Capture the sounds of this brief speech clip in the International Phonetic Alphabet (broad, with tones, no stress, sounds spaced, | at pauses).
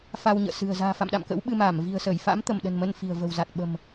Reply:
f a˧ w ɲ ə̰ː˧˨ s ɨ̤˨˩ ə̯ z a̤ː˨˩ f a̰˧˨ m ɗ a̰˧˨ m k ə̰˧˥ w ɓ ɨ˧ m aː˧˩ m v i̤˨˩ ə̯ s əː˧˩ j f a̰˧˥ m t̪ ə˧˩ m ɗ ə̤˨˩ n m ə˧ n f i̤˨˩ ə̯ v ə̤˨˩ w z a˨˩ t̚ ɓ ə̤˨˩ m